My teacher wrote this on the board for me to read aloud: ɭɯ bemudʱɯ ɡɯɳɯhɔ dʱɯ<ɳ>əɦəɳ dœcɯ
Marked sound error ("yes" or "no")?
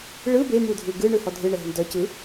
no